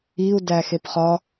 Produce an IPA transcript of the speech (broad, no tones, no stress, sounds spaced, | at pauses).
i u̯ d æ x e p χ ɒ